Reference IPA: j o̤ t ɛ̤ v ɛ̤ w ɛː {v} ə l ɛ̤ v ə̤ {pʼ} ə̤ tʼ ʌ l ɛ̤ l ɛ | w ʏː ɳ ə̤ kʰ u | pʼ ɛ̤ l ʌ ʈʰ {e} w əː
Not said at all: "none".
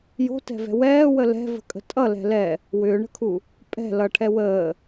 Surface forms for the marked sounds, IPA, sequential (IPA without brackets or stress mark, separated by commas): w, kʼ, ɛ